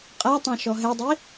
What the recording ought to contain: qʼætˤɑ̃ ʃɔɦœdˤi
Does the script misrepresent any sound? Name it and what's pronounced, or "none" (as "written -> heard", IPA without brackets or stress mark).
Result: œ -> ɛ